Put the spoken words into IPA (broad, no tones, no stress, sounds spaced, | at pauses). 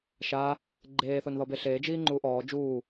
ʃ a | ɡ͡ǃ eː θ o n ð ɔ b e ɬ eː d͡ʒ iː ŋ͡ǃ uː ʔ ɔː d͡ʒ uː